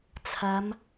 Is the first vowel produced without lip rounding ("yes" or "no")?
yes